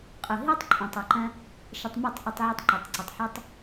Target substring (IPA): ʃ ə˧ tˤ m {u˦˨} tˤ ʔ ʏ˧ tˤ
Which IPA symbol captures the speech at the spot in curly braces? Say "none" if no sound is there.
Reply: u˦˨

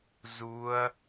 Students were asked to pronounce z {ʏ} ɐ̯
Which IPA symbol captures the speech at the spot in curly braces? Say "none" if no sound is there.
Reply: u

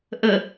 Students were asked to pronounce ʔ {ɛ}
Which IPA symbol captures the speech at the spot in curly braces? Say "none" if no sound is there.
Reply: ə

